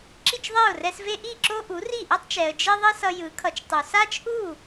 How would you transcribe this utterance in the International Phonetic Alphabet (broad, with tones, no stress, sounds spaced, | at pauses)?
ǁ i˥˩ t͡ʃ ðˤ e˥˩ ʊ̯ r ɛ˧ s v e˥ ʔ i˥˩ ǁ o˥ ʔ u˩˥ r i˥˩ ʔ e˥ tˤ t͡ʃ ɛ˩ ə̯ d͡ʒ e˥ ðˤ i˥ s ʌ˧ j ɯ˩˥ kʰ ʌ˩˥ t͡ʃ tˤ u˩ s a˥ t͡ʃ ʔ u˥˩